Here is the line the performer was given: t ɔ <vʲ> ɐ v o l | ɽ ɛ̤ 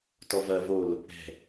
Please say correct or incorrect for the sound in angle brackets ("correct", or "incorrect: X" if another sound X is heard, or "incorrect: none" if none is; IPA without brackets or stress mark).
incorrect: v